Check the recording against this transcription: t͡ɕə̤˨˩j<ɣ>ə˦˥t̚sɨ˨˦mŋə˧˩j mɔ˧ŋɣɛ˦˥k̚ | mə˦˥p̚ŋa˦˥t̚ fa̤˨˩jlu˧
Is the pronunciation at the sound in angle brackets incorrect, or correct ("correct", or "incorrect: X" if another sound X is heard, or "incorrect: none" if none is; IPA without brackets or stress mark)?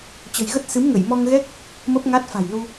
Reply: correct